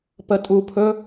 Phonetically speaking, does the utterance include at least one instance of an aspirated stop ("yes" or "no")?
yes